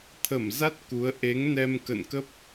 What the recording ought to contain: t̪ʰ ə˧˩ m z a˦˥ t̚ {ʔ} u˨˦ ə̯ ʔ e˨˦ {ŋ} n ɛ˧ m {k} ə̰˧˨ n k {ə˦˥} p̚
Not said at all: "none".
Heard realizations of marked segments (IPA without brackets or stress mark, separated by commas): k, ŋ, k, ə˦˥